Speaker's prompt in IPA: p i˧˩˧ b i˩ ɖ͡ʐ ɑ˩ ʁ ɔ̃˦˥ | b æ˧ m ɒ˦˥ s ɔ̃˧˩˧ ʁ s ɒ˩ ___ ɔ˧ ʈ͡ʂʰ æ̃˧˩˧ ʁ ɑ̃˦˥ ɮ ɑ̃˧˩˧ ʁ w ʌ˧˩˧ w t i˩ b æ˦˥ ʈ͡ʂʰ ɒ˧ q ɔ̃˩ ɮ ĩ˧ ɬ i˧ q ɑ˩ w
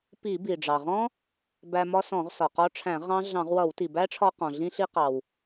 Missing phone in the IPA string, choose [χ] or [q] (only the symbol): q